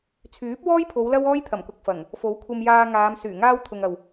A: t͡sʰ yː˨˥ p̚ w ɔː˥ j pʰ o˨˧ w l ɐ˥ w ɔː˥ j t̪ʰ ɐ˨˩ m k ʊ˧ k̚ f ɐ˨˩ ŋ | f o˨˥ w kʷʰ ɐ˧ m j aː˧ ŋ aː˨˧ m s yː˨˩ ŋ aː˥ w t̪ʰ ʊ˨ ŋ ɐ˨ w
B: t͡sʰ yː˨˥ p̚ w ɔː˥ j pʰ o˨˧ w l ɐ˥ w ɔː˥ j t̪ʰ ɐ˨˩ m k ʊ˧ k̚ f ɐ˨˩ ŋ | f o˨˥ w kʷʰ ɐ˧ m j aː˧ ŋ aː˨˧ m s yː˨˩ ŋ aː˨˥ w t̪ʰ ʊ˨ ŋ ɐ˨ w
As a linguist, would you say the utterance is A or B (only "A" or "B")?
A